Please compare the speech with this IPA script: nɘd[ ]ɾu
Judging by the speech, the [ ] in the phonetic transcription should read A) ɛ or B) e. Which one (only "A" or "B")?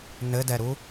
A